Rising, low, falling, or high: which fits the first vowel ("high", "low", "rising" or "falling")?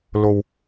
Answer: low